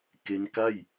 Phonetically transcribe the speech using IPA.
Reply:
k e˦˥ n k a˥˩ j

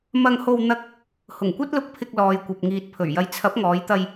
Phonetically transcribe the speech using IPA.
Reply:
m ɐ˧ ŋ h o˧ w n̪ ɐ˥ k̚ | h ʊ˨˩ ŋ kʷ ɐ˥ t̚ l ʊ˧ k̚ pʰ ɪ˧ k̚ l ɔː˨ j kʷ ɐ˨ p̚ ŋ iː˨ t̚ pʰ ɵ˨˩ ɥ j ɐ˨ j t͡sʰ ɐ˨˥ p̚ ŋ ɔː˨˧ j t̪ ɐ˧ j

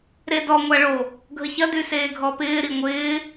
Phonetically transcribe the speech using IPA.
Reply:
ɾ e d ɔ ŋʷ a ɭ o | ɡʱ ə ç ɐ d y s eː ɡʱ ɔ p ɪː ɾ i ŋʷ ɪː

